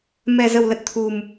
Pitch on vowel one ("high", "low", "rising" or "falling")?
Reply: low